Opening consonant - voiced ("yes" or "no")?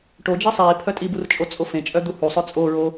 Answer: no